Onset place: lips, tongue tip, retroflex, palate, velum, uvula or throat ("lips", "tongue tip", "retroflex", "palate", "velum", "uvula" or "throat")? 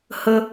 throat